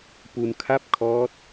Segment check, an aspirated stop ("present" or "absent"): present